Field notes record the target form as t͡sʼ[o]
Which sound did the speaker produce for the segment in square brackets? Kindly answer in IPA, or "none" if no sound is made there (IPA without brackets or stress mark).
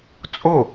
o